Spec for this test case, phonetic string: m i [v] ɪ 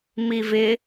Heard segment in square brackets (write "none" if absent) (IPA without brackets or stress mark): v